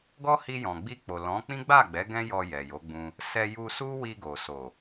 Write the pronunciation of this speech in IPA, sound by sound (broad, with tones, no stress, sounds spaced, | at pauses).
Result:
ɡ ɔ˦ h i˧ j ɔ̃˨ ɡ͡b i˧ k͡p o˨ l ɔ̃˨˦ k͡p ĩ˦ ɡ͡b a˦˨ ɡ͡b ɛ˨˦ ɡ ɛ̃˦ j ɔ˧ j ɛ˨ j o˨˦ ɡ͡b ũ˧ | s ɛ˧ j u˧ s u˦ w i˧ ɡ o˨ s o˨